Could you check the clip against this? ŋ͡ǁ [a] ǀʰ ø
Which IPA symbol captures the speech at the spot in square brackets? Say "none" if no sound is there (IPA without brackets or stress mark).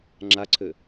a